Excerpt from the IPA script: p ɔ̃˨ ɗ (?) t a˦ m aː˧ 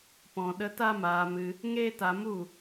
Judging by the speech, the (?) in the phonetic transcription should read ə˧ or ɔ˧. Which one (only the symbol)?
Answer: ə˧